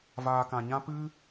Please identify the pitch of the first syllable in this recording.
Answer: low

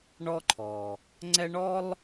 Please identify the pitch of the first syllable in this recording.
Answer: high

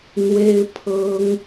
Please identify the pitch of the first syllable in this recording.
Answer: high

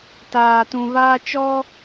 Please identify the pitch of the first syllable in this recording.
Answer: low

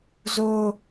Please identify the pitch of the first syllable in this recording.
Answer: high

